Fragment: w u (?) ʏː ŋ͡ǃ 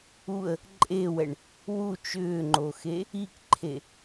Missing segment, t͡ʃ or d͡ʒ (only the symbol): t͡ʃ